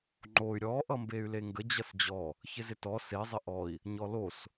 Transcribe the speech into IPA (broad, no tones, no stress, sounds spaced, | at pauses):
ŋ͡ǃ o y̯ ɾʲ ɔ ʔ ʌ m b e y̯ l e ŋ ɡ ə d͡ʑ ʌ s d͡ʑ ɔ | ç ɪ z ɪ t ɔ s e zˤ ɪ ʔ ɔ i̯ | ɲ ɔ l o s